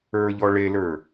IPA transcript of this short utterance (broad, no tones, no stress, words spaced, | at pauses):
ə˞ʎɔ ɭelə˞